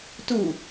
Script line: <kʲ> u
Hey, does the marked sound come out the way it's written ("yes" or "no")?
no